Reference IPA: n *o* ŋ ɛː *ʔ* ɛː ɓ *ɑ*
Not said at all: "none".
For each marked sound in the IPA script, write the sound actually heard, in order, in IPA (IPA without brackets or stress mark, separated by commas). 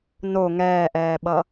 o, ʔ, ʌ